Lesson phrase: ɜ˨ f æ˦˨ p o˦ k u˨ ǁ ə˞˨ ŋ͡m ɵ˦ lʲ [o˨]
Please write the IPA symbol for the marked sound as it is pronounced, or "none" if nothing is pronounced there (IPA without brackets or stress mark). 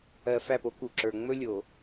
o˨